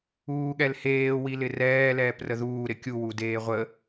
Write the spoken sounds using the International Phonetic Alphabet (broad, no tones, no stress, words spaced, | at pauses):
uːɠɛlheː wilɪrɛː lɛːprəðuː ɾɪkʲu wudeːʁʷə